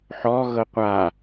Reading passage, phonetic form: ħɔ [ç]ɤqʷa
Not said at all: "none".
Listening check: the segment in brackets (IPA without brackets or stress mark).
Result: ɣ